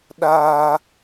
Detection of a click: absent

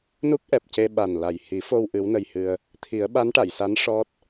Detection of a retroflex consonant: present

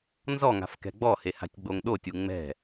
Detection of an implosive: present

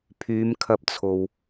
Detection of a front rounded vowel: present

